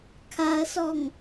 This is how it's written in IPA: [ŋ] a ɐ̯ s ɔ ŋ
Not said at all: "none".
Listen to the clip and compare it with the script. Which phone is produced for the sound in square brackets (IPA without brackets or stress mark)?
kʰ